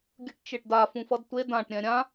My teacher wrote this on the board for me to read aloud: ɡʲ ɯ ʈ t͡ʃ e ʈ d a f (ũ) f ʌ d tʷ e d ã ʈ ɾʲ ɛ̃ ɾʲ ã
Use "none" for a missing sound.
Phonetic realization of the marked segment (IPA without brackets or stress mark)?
ũ